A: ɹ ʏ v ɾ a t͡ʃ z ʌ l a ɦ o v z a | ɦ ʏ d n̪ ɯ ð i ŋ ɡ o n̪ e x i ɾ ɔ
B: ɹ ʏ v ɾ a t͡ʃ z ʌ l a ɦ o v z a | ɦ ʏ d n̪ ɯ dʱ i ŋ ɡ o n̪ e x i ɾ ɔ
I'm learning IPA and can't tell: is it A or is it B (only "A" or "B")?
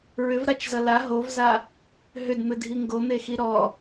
B